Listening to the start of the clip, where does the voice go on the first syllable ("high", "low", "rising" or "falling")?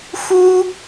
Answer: high